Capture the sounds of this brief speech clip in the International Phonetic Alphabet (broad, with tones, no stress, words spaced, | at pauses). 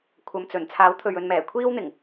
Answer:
kʷʰɐ˨mt͡sɵ˨˩n t͡sʰaː˨˥wt̪ʰɵ˨ɥɵ˨nmɛː˨˩ kʷʰiː˥wn̪ɪ˨˩ŋ